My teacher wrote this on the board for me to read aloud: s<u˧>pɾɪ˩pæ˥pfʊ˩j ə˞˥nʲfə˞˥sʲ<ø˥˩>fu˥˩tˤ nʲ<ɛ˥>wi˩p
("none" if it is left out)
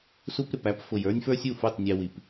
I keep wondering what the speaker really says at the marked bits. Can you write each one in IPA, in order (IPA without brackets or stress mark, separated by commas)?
u˧, u˥˩, ɛ˧